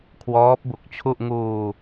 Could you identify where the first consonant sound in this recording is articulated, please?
velar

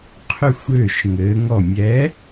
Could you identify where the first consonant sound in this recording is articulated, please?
uvular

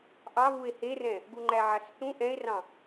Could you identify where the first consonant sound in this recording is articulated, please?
glottal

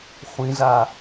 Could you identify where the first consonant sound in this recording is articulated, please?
uvular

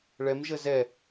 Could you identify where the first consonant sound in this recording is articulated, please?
retroflex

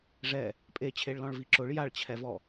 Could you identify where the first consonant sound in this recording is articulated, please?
retroflex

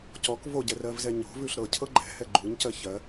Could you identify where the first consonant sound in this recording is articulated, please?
palatal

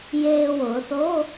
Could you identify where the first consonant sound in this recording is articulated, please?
palatal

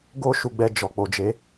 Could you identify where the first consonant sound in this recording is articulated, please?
velar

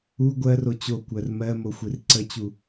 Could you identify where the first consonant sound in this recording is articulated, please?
velar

